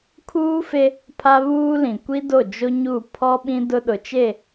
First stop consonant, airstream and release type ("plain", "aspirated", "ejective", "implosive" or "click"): aspirated